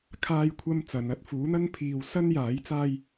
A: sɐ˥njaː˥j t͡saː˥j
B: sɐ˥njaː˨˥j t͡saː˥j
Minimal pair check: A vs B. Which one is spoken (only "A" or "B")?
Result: B